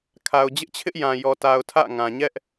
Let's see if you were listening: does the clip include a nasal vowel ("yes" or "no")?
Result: yes